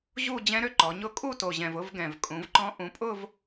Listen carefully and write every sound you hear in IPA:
ʑu˥˧ d͡ʑɛ̃˦˥ɾø˦˥ ǃɔ˩˧ɲʊ˥˧ kʼu˥˧to˨˩ʑɛ̃˨˩v ʊ˥˧v ɡɛ̃˨˩vkʼũ˩˧vǃɔ̃˦˥ ʔũ˩˧pʼʊ˥˧v

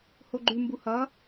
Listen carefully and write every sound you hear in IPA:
hoɡ͡ǃʉmbu hʌ

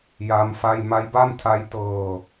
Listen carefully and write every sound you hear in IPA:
ja˦˥mfa˥˩j ma˦˥jba˥˩mtʰa˦˥j tɤː˧

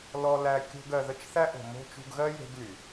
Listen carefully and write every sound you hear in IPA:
lɔ˧læ˧ kʲo̤˧ɡ ɜ˨ðə˧t͡ʃ θæ˦ʔo̤˨ mo̤˧ t͡ʃṳ˧ɡɣɜ˦ je̤˦ɡly˨

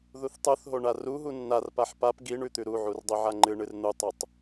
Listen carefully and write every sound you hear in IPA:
ðuθtˤuθɦo ɳaruɦu nːarpaħ pap ɡi ɳʉt̪ʉɾuʕur dˤuʕaŋ͡ǃɨɳɨr n̪utˤutˤ

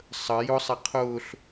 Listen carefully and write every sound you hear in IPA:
sˤə jʊsˤɛ qʰʊːɬ

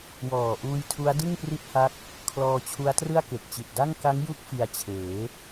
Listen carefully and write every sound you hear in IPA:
wɔː˨˩ʔuː˧jtʰu˦˥a̯dɯ˥˩ŋ pri˥˩t̚ha˦˥k̚ | kʰlɔː˧t͡ɕʰu˦˥a̯trɯ˥˩a̯ ke˨˩k̚t͡ɕi˨˩t̚da˥˩ŋ ka˦˥ŋju˦˥k̚ fi˧a̯t͡ɕʰeː˩˦

